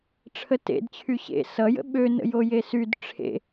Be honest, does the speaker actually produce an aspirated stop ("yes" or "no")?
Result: yes